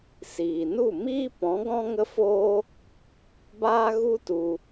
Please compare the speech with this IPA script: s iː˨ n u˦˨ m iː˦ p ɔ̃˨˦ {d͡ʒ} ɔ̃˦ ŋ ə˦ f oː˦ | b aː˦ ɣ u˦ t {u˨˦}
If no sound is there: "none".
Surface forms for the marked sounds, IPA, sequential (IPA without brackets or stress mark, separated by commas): ɡ, u˧